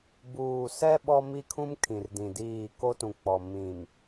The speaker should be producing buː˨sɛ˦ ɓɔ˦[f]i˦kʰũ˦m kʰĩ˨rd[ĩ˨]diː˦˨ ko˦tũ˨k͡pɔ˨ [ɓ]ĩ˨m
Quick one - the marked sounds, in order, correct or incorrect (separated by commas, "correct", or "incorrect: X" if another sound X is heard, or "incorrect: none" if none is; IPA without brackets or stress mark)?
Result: incorrect: m, correct, incorrect: m